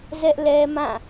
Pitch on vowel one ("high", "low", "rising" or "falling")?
high